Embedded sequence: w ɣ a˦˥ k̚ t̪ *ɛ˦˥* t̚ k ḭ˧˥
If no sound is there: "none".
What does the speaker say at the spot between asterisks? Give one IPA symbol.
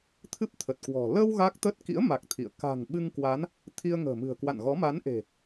ə˦˥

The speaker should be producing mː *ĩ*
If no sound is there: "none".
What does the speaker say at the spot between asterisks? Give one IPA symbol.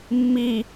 i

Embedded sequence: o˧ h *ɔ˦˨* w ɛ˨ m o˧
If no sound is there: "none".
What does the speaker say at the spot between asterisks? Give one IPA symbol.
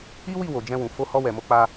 ɔ˧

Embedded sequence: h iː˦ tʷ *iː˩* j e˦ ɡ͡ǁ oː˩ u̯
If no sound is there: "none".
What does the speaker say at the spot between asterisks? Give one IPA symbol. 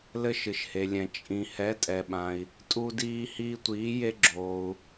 iː˨˥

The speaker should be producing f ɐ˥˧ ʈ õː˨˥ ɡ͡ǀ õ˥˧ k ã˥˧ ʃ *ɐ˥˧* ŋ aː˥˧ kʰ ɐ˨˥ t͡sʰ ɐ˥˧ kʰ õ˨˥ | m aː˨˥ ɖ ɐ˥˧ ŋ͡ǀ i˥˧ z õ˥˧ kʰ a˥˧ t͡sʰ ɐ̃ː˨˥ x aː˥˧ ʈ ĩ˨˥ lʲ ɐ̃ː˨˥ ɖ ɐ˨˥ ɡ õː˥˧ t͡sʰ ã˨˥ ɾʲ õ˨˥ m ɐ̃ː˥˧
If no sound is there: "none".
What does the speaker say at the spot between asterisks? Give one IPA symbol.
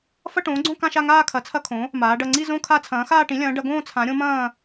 a˥˧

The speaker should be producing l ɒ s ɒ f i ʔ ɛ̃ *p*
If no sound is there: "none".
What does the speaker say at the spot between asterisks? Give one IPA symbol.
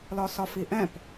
p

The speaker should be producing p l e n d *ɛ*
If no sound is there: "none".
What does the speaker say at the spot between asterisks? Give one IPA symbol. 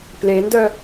œ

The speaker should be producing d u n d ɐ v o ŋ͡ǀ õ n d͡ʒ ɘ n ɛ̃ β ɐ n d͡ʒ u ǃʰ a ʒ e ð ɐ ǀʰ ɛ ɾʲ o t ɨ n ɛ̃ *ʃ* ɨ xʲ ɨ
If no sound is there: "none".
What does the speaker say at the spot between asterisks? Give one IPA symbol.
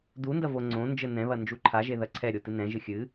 ʒ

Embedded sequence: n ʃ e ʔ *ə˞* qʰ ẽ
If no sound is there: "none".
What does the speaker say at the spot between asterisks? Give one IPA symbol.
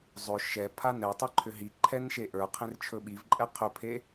ə˞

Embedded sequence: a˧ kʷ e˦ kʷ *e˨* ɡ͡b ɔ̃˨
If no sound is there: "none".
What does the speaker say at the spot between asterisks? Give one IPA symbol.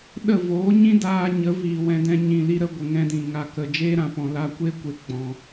e˨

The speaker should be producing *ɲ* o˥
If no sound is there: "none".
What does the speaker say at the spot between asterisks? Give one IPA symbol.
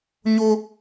ɲ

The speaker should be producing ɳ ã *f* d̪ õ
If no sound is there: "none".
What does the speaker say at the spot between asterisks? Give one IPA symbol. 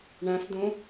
f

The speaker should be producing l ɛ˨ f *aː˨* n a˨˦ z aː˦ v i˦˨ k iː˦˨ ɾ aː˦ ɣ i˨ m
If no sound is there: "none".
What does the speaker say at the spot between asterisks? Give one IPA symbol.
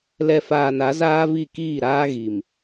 aː˨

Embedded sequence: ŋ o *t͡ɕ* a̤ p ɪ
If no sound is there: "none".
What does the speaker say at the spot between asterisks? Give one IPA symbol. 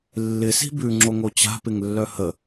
t͡ɕ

